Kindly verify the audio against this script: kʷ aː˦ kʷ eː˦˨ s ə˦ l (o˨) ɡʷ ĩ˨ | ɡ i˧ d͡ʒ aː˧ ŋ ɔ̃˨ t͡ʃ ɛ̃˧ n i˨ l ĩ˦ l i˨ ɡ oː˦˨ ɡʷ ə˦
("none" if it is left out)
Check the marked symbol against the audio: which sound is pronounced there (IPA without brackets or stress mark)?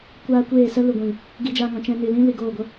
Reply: u˨